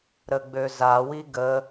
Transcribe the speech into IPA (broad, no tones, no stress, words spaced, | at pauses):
ɾəɡ͡bøza wiɡə